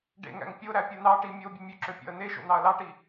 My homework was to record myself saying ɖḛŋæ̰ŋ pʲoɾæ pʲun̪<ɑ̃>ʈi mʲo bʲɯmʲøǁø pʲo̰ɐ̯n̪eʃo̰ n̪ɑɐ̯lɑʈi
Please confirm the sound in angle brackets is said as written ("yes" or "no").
no